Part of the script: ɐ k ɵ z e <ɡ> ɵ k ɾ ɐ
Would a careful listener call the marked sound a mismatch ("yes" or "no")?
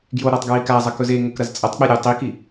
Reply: yes